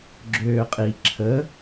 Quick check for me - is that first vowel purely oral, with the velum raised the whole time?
yes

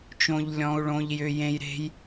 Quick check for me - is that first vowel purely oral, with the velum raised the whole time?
no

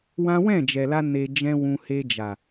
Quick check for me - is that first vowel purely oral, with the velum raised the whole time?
no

